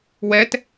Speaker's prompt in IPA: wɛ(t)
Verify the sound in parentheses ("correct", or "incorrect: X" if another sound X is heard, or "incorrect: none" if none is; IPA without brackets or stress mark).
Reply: correct